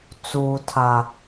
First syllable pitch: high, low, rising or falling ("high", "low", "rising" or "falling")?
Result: high